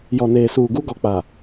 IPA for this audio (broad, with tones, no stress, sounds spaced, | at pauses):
j ɔ˨ n eː˨ s uː˨ ɡ u˦ ɡ ɔ˨ k͡p a˨